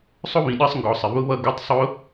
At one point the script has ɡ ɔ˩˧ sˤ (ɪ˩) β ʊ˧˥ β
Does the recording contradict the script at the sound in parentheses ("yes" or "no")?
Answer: no